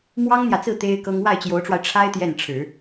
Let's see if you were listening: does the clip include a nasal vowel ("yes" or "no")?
no